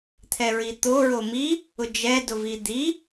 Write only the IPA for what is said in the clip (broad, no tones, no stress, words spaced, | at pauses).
t̪ʰɛɹit̪o ɹomi | ʊd͡ʒɛ dʊvid̪i